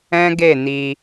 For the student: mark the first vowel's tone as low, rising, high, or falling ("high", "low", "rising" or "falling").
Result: high